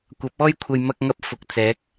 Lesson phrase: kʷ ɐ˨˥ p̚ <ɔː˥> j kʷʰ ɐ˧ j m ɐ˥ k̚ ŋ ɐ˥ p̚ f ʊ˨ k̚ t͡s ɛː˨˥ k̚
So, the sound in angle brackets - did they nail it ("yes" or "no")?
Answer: yes